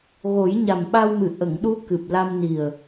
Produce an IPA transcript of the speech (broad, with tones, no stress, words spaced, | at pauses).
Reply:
ɣo˨˩˦jɲa˨˩mɓa˧wmɨ˨˩ ʔə˨˩˨ŋɗu˧˥ kɨ˨˩p̚la˧mni˨˩ə̯